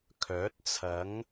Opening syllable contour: rising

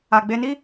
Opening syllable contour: low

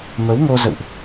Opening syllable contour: rising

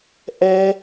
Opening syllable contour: high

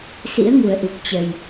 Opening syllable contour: rising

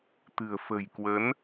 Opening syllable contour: low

